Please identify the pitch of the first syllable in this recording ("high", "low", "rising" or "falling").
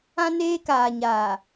high